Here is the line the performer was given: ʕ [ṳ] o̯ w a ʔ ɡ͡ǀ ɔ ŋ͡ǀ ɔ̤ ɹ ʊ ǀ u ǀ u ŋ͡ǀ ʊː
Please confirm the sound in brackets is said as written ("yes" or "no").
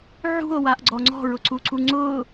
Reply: yes